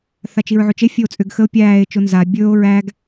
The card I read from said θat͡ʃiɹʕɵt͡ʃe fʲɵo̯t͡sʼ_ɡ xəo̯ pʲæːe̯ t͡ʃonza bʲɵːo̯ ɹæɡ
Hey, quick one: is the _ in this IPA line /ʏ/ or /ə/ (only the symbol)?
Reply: ʏ